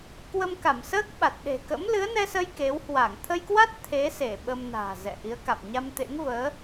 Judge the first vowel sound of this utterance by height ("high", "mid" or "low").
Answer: mid